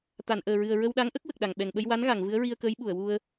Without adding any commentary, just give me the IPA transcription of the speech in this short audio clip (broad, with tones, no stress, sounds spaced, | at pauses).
t̪ a˨˩˨ n ʔ əː˨˩ ɹ ɨ˨˩ ə̯ ɹ ə˧ w ɗ a˧˥ ŋ ʔ ə˦˥ k̚ w ə˨˩ k̚ ɗ a˨˩ ŋ ɓ ɛ˨˩ ŋ ɓ ə˧ j w a˧˥ n ɣ a˨˩˨ ŋ v ɨ˧˥ ə̯ ɹ i˧ ə̯ k əː˧˥ j ɓ u˨˩˨ ə̯ w u˧ ə̯